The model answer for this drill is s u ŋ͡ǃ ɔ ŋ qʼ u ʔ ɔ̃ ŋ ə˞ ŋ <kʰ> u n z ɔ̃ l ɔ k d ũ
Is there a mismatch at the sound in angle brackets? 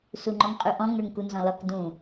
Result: yes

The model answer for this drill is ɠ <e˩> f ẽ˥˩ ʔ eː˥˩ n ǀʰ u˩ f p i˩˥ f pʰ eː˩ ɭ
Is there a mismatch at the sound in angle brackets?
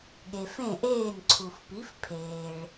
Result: no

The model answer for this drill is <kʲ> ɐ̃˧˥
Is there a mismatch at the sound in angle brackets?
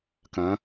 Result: yes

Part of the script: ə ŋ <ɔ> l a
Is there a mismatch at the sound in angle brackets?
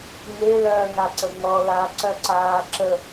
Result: no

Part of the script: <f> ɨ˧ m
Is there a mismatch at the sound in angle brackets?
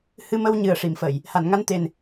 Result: yes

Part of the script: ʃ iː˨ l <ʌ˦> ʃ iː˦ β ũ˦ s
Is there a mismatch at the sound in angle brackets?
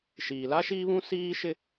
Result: yes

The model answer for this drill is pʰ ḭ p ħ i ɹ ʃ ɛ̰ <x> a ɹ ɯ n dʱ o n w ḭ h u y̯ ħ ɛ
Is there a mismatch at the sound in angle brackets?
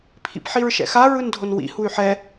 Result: no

